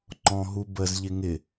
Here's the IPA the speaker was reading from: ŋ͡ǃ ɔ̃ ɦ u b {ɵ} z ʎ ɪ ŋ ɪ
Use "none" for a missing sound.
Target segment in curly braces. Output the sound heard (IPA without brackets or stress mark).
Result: ə